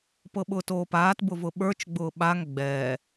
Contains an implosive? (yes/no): yes